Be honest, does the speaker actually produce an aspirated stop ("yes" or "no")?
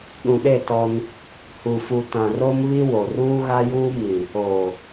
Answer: no